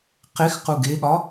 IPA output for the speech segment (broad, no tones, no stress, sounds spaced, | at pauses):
q e x q u ɡ e ɠ ɒ